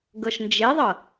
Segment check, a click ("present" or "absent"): absent